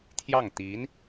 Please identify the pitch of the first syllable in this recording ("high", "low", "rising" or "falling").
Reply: falling